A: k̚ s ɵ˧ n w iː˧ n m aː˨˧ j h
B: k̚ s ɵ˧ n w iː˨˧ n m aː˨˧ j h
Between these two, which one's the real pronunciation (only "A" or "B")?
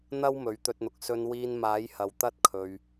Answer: A